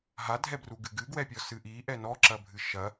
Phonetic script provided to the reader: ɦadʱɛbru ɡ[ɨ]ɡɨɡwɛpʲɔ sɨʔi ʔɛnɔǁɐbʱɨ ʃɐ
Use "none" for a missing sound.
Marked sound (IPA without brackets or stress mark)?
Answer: ɨ